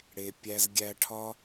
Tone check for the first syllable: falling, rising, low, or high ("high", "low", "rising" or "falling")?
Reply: low